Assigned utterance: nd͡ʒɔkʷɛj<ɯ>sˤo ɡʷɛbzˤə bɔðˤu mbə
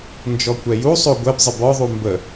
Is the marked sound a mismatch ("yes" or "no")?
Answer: yes